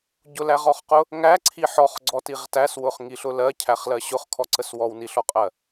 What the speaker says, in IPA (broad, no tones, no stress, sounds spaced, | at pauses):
ɟ ʊ l æ ʁ ɔ χ q ʊ | ŋ æ ǀʰ i ħ ɔ χ ɡ͡ǀ ɔ t i ʁ t æ s w ʊ χ ŋ i ɬ ʊ l ɜ cʰ æ χ l ɜ ɕ ʊ χ kʰ ɔ ǀ ə s w ɔ w n i ɬ ɔ qʼ ɜ